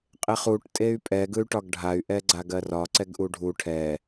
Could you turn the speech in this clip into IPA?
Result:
qʼ e χ u ʈ tʼ e y̯ pʼ ɛ ɡ ɯ y̯ ʈ ɒ ɡ ɖʱ a y̯ ʔ ɛ ɡ͡ǀ a ɡ ɜ r ɒ ǀ ɛ ɡ ʔ u ɖʱ u ʈʰ ɛ

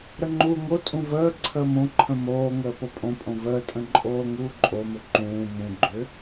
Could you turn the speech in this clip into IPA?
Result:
ɾ ə ŋ͡ǃ uː ŋ o tʼ ũ v əː ǀʰ əː m õ ǃʰ ə̃ m oː ŋ əː p o pʼ õ pʼ õ v əː tʼ ə̃ ǃʼ oː ŋ uː ǃʼ o m ʏ ǃ ũː m ũ ɡ͡ǃ ʏː

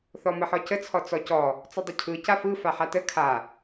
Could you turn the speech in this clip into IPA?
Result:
θ ɔ m ə ħ ɔ c ə t͡sʰ ɔ t͡s ɔ c ɔ | t͡s ɔ dˤ ə cʰ ɯ c a f ɯ f a ħ a t ə kʰ a

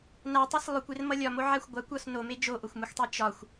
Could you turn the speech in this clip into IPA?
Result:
n a tˤ ʌ s lˠ ɵ kʷ e r m ʌ lʲ ɒ m o ʕ a xʷ ɡʷ a kʷ ɒ s n o m e d͡ʒ o ʔ o xʷ m u xʷ tˤ e t͡ʃ ɒ xʷ

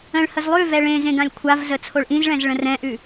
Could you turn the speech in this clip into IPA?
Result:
ə̃ ɭ h ə z lˠ ʉ v ɛ ɭ ẽ z ẽ ɡ ã lʲ kʷʰ a v z ə t͡sʰ o ɭ ʔ ĩ z ɭ ɛ̃ z ɭ ə̃ r ɛ̃ ʔ ʉ

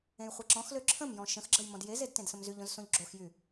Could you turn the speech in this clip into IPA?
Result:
ẽ j χʷ e ǁ ɔ̃ x l ø ǁʰ ə̃ m j ɔ̃ ʃ ə̃ x ɡ͡ǁ ə j m ɔ̃ d j e z e d t ẽ d s ə̃ m z y ʎ õ z s õ ʎ ɡ͡ǁ o x j y

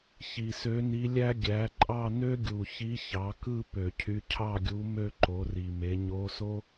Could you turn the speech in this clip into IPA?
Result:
ç i˨˩ s ø˧˥ n i˧˥ lʲ æ˥ ɡʲ æ˩˥ ǃʼ ɑ˥˧ n ø˥ ɡʲ u˨˩ ç i˧˥ ç ɑ˩˥ k ɯ˥˧ p ø˧˩˧ cʰ y˧˥ cʰ ɑ˥˧ ɡʲ u˧˥ m ø˥˧ ǃ o˩˥ r i˨˩ m e˩˥ ɲ o˧˥ s o˥

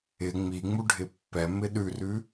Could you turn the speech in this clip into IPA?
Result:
ɪ ŋ͡m i ŋ͡m u ɖʱ ɪ pː ɛ m ɪ ɗ ʉ r ʉ

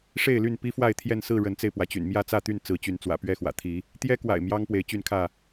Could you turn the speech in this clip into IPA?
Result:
ʂ e˥˨ ɪ̯ l y˥˨ n p i˦ f w a˥˨ ɪ̯ t̪ʰ j ɛ˥˨ n s ɹ̩˥˨ ɻ ə˨˦ n t͡s e˧ ɪ̯ p w ä˩ t͡ɕ y̰˨˩ n m j ä˥˨ t͡s ä˥˨ t̪ y˥˨ n t͡s ɹ̩˨˦ t͡ɕ y˨˦ n t͡s w ä̰˨˩ p ɥ ɛ˥˨ x w ä̰˨˩ t̪ʰ i˨˦ | t̪ j ɛ˦ k w a̰˨˩ ɪ̯ m j ɑ˦ ŋ p w e˨˦ ɪ̯ t͡ɕ y˥˨ n kʰ ä˥˨

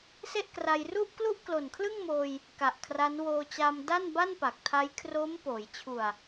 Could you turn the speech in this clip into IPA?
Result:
s e˥˩ ʔ k r a˧ j r u˥˩ ʔ k l u˥˩ ʔ k l o˨˩ n kʰ l ɯ˥˩ ŋ m oː˧ j | k a˨˩ ʔ kʰ r a˦˥ n w oː˧ t͡ɕ aː˧ m d a˥˩ n b a˥˩ n p a˨˩ k̚ tʰ a˦˥ j kʰ r o˦˥ m p oː˩˦ j t͡ɕʰ u˨˩ a̯

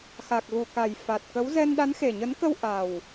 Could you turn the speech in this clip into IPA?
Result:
x a˨˩ k̚ ɣ u˨˩ k a˨˩ j f a˨˩ t̚ k ə˨˦ w z ɛ˧ n ɗ a˨˦ n x e˨˩ ɲ ə˨˦ n k ə˧ w ʔ a˨˩ w

